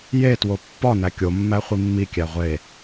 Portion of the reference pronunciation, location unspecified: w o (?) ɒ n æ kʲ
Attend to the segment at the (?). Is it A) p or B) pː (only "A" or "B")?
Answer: B